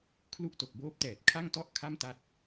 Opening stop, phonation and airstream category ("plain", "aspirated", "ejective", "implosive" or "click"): aspirated